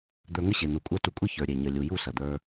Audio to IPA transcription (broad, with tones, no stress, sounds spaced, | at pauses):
d̪ ə˞˧ ŋ ə˦ ɕ e˨ n̪ u˨ kʷʼ ə˞˧ t u˧ kʷʼ i˦ ç ə˞˨ ɾʲ e˨ ɲ ə˨ lʲ u˨ j u˦˨ s ɐ˨ d̪ ə˞˧